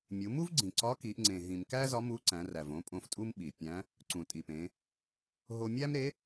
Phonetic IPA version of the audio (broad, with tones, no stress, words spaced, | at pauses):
mʲu˩˧mu˥vɡ͡ǀĩ˩ ǀɒ˧˥ki˩˧ʔ ŋ͡ǀẽ˩ɦĩ˩mkæ˥ zɒ˧˥mu˧˥ǀæ̃˩˧ræ˩v õ˧˥pʼõ˧ftʼu˥m ɓi˩pʲæ̃˧˥ | ǀũ˩tʼi˩pẽ˩˧ | ɦo˧mʲæ˥mɾe˧˥